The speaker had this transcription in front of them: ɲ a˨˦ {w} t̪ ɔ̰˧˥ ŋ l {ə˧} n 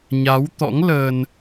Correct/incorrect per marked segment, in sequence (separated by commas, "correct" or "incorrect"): correct, correct